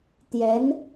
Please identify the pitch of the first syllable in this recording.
rising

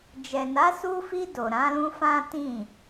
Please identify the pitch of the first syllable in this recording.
low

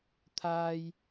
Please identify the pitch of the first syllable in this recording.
high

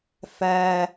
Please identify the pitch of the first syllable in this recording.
high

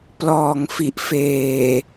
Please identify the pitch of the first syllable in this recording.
low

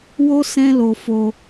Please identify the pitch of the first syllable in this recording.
high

